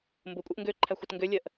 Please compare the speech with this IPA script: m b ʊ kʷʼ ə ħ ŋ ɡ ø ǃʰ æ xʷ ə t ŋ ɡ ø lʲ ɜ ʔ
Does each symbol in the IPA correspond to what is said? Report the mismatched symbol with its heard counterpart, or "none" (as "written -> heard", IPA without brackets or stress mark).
ħ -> ʔ